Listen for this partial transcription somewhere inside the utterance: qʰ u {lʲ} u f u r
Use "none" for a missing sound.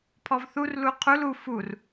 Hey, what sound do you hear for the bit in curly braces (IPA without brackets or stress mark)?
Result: l